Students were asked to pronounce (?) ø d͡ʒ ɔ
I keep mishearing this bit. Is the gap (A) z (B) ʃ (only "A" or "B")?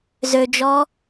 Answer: A